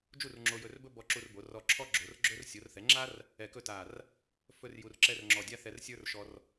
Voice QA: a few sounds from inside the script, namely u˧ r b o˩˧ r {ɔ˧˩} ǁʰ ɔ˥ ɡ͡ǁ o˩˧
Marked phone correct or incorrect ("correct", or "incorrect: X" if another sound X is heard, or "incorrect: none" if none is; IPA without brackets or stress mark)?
correct